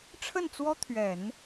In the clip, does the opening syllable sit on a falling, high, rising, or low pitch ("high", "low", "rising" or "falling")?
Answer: falling